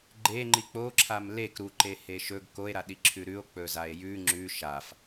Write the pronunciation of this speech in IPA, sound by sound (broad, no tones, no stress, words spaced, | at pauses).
ɡ͡ǃeŋ͡ǃi k͡po ǁʰamlek ɾuǃe heʃɵɡ koe̯ɾa ɗiǁʰʉɾʉo̯ k͡pɵzae̯jʉ ŋ͡ǁʉ ʃaf